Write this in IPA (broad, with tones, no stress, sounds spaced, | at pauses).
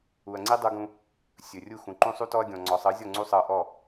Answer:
u˨ ɐ̯ ŋ͡ǀ i˦ dˤ u˧ ɡ ũ˧ | sʲ ɵ˨ rʲ u˦˨ x ũ˨ ǃ ũ˦ sˤ u˦ t ɔ˦ ɐ̯ ɡʲ ɔ̃˨ ŋ͡ǀ ɔ˨ sˤ ɤ˨˦ zʲ ɔ˦˨ ŋ͡ǀ u˦ sˤ ɤ˧ ʔ ɔ˦˨